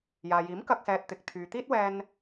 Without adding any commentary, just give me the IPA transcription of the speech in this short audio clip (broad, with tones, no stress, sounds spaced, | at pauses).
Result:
j aː˨ j iː˨˥ m k ɐ˧ k̚ s ɛː˨ t̚ t̪ ɪ˨ k̚ t̪ʰ yː˨ t̪ iː˥ t̚ w ɛː˧ n